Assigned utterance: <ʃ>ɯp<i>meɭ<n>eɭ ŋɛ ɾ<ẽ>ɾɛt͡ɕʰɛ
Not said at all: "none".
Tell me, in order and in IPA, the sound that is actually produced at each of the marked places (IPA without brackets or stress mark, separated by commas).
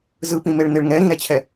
z, ĩ, n, ĩ